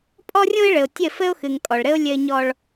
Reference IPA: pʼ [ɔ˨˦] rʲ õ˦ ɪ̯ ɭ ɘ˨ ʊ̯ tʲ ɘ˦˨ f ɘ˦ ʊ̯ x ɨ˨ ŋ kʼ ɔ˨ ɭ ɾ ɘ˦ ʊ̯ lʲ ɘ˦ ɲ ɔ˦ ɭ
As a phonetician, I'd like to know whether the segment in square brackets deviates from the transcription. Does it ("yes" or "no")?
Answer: yes